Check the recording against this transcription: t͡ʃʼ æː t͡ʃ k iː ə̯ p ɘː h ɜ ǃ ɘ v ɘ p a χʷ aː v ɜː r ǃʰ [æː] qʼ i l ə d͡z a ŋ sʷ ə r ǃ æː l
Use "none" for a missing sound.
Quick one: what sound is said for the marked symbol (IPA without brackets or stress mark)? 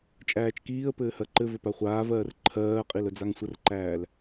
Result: ɜː